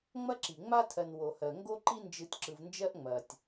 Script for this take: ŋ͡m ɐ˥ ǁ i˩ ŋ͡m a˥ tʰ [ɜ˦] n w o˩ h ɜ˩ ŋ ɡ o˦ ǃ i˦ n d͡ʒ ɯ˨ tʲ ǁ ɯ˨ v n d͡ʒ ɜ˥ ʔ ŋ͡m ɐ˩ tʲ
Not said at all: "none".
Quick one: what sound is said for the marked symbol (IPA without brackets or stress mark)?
ɜ˨